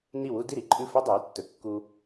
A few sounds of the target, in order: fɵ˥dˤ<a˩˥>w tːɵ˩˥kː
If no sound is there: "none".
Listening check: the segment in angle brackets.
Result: a˩˥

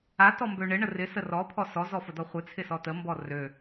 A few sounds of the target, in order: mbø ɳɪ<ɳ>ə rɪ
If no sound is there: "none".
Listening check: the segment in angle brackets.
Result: ɳ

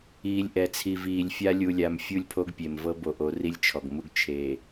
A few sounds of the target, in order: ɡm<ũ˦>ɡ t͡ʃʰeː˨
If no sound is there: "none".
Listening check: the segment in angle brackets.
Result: u˦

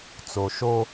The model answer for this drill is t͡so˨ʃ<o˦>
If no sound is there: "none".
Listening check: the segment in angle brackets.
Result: o˦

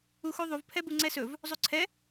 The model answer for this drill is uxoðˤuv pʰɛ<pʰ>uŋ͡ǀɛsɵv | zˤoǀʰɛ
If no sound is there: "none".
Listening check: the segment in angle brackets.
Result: b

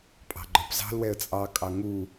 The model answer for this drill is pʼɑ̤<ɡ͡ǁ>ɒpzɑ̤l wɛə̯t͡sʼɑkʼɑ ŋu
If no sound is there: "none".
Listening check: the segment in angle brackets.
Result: ɡ͡ǃ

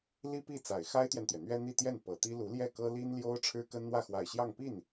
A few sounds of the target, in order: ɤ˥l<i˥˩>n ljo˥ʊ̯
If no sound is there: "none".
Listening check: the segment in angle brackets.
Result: i˥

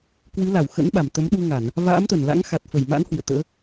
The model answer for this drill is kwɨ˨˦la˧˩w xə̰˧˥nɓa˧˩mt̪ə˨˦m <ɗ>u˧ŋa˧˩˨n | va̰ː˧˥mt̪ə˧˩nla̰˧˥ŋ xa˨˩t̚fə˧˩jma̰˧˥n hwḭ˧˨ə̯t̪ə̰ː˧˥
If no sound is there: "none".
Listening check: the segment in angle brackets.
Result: ɗ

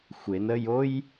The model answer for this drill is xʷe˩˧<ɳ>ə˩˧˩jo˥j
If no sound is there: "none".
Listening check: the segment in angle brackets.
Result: n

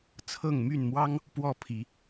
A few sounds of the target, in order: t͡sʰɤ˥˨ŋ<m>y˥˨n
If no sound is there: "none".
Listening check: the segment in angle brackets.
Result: m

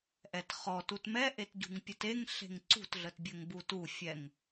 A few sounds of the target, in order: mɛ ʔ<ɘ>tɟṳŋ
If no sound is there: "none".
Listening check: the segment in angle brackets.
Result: e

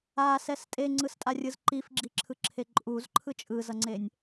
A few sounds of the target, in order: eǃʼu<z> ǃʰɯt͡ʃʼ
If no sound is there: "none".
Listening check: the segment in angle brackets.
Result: z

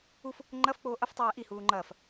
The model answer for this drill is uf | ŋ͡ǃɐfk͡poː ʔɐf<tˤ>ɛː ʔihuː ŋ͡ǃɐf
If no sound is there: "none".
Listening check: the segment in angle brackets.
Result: tˤ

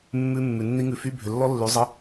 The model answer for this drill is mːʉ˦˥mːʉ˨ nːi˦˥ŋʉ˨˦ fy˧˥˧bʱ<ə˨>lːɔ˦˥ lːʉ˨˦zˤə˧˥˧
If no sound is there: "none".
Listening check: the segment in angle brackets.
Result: ʏ˨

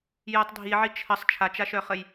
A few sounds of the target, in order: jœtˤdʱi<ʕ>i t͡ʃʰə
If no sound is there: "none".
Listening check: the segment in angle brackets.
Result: ʕ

